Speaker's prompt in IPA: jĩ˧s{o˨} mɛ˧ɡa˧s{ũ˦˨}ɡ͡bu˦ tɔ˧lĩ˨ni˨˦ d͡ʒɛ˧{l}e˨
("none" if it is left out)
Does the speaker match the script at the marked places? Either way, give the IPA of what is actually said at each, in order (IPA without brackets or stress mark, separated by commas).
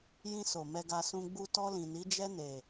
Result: o˨, ũ˧, n